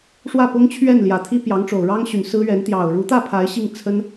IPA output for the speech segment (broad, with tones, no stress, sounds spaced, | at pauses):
ʂ w ä˥˩ p ʊ˥ ŋ t͡ɕʰ ɥ ɛ˥˩ n l j ä˨˩ t̪ʰ i˥ p j ɑ˧˥ ŋ ʈ͡ʂ o˨˩ ʊ̯ ɻ ɑ˥ ŋ ɕ y˨˩ n s ɹ̩˥ ɥ ɛ˧˥ n t̪ j ɑ˨˩ ʊ̯ ɻ u˧˥ t̪ ä˥˩ pʰ a˧˥ ɪ̯ ɕ i˥˩ ŋ t͡sʰ ə˥ n